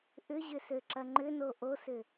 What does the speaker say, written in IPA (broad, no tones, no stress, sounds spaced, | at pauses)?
ʔ ʏ ʑ ʏ s ø ǁ ɐ ŋ͡ǃ ʏ n o ʔ o s ʏ